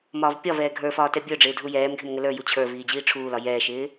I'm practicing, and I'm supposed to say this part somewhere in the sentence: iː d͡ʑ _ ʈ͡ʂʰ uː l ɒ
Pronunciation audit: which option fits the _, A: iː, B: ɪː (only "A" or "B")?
A